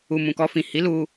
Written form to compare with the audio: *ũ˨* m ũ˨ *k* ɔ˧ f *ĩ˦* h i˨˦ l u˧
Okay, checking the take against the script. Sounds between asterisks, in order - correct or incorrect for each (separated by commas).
incorrect, correct, incorrect